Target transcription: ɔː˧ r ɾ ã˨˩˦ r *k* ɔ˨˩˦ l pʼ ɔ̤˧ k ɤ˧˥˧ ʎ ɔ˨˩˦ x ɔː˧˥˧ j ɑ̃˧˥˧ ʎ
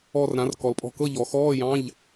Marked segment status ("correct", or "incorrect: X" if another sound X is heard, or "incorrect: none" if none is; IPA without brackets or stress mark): correct